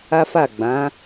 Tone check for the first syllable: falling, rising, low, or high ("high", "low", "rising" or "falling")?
high